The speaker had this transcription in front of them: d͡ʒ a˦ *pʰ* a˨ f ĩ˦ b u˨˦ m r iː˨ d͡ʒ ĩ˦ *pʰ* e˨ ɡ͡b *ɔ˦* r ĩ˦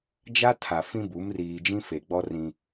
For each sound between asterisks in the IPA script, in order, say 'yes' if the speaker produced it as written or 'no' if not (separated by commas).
no, no, yes